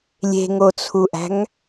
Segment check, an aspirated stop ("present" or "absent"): present